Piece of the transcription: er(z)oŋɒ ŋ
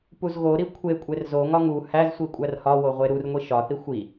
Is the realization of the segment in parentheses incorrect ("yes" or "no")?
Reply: no